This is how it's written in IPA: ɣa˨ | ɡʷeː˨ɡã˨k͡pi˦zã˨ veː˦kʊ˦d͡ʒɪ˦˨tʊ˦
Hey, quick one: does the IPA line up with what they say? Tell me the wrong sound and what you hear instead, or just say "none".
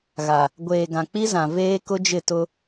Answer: none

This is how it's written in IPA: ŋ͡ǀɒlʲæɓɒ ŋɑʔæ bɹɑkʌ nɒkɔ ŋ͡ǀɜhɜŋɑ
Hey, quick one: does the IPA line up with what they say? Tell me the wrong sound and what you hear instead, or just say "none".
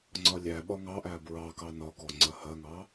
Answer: ʌ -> ɑ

